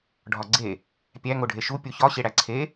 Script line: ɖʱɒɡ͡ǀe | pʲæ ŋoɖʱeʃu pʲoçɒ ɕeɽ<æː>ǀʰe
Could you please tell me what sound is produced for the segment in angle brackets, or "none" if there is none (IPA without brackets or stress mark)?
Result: æ